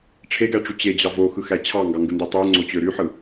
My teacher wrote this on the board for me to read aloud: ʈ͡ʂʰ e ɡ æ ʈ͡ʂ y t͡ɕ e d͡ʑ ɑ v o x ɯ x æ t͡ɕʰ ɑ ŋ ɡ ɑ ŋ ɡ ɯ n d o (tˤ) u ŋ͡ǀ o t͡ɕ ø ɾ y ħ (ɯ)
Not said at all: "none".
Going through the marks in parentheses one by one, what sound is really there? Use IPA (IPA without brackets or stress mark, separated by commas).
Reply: tˤ, ɯ